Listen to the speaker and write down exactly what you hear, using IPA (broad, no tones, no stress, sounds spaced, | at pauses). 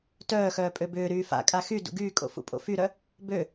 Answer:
t œː x œː pʼ ø b ʏː ɾ yː f a̰ kʼ a x y d ṵ ɡ yː kʼ o̰ f ṵ pʼ o̰ f y ɾ œ | b ø